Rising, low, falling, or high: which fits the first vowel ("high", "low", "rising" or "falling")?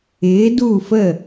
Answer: rising